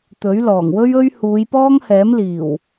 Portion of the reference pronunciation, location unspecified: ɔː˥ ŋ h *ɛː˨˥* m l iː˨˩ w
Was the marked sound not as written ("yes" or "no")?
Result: no